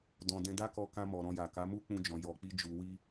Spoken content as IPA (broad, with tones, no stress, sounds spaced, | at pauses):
d ɔ̃˧ d ɛ̃˧ d a˦ k ɔ˧ k ã˧ m ɔ˨ ɾ ɔ̃˧ j a˨ k a˨˦ m u˦ k͡p ũ˧ d͡ʒ ɔ̃˨ j ɔ˨ k͡p i˧ d͡ʒ u˨ w i˧